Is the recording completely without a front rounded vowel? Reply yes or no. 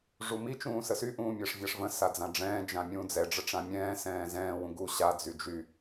no